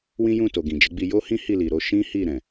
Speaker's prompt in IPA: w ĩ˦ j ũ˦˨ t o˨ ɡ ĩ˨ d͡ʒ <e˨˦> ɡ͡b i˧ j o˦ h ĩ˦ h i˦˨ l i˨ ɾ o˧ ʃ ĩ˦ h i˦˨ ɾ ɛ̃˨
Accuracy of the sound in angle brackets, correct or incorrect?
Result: correct